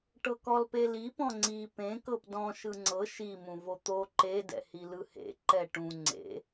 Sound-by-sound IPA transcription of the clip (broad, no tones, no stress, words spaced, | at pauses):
ʈɤkɔlpeli pɔ̃ŋ͡ǀi pẽ kɤpdɔ̃ ʃɯŋ͡ǀɤ ʃi mũvot̪o ǃe dɛ̰hilɯhḛ ǃɛʈũ ŋ͡ǀḛ